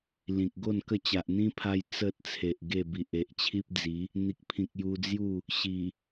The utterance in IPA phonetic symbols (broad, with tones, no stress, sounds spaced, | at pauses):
l ĩ˨ k̚ ɡ o˥˧ n k ə˥˧ t͡ɕ a˨ ʔ n̪ ĩ˦ pʰ a˧ j t͡s ə˨ t̚ t͡sʰ e˨ ʔ ɡ e˥˧ b i˨ ʔ e˨ ʔ t͡ɕʰ i˦ p̚ d͡z i˨˦ | n̪ i˨ k̚ pʰ ĩ˨ k̚ j u˧ d͡z j u˥˧ | ɕ i˨˩